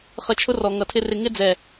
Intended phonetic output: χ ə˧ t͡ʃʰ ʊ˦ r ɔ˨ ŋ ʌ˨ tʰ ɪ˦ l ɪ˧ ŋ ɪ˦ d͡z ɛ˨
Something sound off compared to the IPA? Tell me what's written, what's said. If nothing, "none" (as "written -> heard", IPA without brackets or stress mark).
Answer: l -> r